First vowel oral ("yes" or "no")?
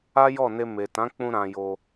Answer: yes